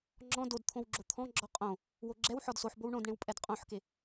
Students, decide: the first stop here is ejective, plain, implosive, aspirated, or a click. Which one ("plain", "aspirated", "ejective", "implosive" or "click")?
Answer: click